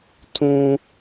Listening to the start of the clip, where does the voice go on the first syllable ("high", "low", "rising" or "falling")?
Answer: low